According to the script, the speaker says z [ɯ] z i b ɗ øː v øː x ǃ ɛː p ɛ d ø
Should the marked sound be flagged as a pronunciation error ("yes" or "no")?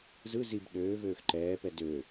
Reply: no